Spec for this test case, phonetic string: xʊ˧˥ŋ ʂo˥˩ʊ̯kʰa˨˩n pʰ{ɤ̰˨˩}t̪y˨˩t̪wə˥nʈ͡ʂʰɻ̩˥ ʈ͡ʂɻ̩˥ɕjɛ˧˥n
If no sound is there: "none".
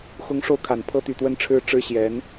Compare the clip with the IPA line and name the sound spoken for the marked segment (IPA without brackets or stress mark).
ɤ˥